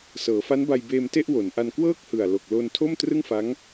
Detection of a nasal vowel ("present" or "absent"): absent